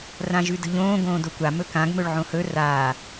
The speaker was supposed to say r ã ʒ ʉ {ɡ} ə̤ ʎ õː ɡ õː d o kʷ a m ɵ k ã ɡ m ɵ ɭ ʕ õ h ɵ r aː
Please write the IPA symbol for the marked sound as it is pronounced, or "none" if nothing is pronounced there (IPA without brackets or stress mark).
d